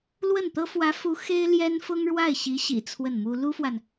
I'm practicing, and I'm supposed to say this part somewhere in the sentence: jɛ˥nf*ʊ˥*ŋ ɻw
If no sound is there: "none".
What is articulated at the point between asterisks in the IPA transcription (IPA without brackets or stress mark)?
ʊ˥